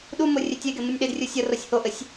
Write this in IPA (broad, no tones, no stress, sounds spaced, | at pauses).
ɗ u m o rʲ e tʲ e ɡ e m u nʲ ɗ e d rʲ u sʲ ʌ r o sʲ h o ʔ ɘ sʲ